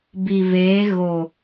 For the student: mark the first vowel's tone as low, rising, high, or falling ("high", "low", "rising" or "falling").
low